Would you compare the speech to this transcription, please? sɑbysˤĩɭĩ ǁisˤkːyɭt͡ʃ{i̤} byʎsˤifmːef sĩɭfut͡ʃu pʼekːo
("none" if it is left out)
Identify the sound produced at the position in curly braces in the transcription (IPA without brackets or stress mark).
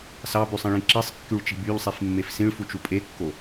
i̤